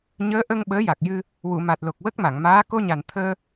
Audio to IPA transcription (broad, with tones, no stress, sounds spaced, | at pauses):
ɲ əː˧˥ ʔ ə˧ ŋ ɓ əː˧˥ j a˨˩ k̚ j ɨ˧ | w u˨˩˨ m a˨˩ t̚ l o˨˩ k̚ w ə˦˥ k̚ m a˨˩˨ ŋ m aː˧˥ k o˧ ɲ a˨˩ n t̪ʰ əː˧